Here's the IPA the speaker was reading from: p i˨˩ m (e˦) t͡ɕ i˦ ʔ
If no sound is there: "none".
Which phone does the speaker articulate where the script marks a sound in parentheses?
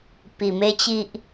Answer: e˦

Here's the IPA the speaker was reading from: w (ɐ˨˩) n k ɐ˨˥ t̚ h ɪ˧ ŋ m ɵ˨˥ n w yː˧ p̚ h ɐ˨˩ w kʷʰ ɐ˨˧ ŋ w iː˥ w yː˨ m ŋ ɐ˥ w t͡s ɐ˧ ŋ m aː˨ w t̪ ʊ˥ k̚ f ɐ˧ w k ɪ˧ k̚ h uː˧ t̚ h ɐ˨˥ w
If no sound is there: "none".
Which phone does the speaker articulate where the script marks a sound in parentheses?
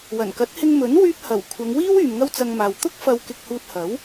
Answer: ɐ˨˩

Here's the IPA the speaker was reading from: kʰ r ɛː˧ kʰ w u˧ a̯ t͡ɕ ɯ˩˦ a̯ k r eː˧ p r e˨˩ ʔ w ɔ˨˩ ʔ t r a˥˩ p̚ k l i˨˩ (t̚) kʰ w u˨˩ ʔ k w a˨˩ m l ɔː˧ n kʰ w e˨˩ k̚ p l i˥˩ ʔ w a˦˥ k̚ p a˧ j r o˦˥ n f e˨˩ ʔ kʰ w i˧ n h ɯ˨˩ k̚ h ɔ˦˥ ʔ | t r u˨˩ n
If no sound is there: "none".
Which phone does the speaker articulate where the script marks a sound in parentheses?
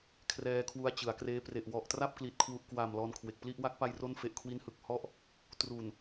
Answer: t̚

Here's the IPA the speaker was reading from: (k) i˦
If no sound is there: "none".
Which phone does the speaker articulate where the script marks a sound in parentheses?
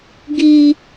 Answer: ɡ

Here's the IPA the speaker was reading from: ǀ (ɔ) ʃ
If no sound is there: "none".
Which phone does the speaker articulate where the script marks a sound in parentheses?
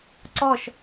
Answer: ɔ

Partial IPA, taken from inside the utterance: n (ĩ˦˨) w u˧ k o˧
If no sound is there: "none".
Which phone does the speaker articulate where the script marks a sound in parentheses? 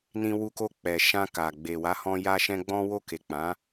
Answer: ĩ˧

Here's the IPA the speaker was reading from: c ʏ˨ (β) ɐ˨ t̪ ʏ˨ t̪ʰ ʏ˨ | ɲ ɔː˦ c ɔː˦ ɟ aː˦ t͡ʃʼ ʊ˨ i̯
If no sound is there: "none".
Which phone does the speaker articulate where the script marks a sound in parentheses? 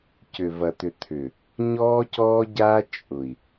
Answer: v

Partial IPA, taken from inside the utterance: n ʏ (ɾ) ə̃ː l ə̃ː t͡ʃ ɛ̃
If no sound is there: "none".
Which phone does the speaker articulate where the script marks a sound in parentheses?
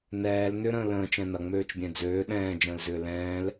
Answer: ɾ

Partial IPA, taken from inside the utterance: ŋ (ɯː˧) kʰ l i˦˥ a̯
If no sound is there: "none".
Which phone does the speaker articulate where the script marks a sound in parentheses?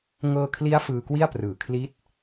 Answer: ɤː˧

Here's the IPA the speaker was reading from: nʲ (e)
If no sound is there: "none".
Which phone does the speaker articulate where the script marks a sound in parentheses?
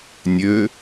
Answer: ø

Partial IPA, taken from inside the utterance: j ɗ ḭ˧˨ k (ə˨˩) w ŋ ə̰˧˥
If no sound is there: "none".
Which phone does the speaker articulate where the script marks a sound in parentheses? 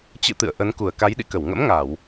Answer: ə˧˩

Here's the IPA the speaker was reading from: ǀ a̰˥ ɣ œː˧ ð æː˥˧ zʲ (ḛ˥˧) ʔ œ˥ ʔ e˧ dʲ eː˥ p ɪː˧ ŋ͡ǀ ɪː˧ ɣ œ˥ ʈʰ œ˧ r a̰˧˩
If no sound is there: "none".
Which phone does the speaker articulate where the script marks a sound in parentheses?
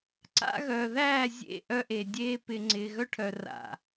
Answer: ḛ˥˧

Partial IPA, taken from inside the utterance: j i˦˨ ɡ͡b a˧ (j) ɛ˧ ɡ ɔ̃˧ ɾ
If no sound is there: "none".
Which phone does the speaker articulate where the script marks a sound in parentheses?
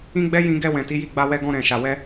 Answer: w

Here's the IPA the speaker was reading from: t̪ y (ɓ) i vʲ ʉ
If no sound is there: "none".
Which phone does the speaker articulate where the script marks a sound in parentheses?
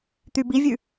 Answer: b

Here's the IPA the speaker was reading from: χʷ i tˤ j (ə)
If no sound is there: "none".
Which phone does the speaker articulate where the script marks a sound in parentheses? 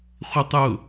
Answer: ʊ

